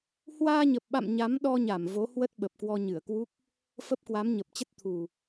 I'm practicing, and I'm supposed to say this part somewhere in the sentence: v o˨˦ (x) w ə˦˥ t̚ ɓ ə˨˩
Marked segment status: incorrect: h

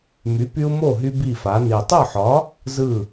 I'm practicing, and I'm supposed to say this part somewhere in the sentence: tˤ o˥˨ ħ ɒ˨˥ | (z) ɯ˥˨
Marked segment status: correct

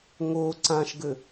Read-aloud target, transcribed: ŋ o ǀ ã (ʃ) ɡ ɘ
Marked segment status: correct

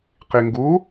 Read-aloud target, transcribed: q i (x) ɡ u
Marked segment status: incorrect: ŋ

